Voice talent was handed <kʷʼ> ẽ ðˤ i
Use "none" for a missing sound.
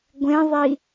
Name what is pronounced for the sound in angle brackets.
ɡʷ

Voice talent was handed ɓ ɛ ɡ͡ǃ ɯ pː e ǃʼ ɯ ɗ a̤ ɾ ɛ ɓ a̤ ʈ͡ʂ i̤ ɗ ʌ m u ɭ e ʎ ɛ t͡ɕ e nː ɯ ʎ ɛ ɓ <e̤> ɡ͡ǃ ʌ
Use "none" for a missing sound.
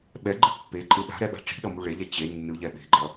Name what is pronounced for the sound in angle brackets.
e̤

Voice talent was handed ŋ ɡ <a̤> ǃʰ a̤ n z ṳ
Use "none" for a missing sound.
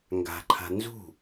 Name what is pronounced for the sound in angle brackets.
a̤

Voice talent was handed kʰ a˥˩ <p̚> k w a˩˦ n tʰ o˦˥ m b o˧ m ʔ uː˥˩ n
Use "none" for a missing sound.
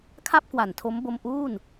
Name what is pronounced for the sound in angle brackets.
p̚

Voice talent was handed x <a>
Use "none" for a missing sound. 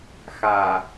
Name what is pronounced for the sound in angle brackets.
a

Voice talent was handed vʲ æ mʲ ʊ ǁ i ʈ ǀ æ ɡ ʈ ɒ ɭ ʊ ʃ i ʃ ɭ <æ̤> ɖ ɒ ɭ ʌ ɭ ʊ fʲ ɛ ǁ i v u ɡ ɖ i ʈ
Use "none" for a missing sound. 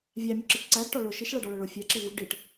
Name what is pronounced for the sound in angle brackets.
æ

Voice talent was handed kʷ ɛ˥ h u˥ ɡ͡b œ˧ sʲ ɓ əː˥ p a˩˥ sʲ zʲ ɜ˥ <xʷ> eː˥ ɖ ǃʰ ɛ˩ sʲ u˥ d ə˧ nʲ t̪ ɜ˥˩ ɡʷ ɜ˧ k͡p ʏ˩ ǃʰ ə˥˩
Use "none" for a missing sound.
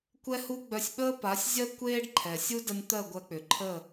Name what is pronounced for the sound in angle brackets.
kʷ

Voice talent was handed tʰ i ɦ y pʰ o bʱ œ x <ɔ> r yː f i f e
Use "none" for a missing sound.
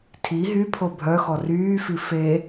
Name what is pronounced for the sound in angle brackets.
ɔ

